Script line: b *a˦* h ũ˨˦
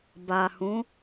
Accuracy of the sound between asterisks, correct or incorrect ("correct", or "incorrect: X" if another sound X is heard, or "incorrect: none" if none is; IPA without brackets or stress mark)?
incorrect: a˨